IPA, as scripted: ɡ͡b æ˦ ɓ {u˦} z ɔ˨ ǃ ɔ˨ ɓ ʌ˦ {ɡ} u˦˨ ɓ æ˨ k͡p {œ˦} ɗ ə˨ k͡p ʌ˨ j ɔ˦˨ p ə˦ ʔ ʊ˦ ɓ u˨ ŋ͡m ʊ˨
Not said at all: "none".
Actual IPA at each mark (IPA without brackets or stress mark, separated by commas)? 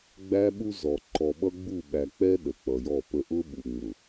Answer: u˦, ɡ͡b, ɛ˦